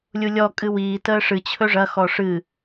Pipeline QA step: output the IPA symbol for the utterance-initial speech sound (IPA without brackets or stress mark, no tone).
lʲ